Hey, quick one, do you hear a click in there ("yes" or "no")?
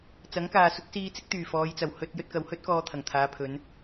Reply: no